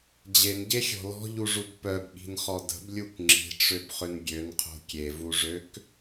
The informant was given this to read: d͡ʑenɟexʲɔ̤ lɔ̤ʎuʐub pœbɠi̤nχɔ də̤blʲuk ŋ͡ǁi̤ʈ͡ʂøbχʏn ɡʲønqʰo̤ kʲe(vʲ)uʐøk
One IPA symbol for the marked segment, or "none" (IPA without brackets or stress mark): v